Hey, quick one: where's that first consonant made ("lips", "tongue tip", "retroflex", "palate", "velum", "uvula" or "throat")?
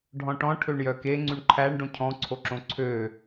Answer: retroflex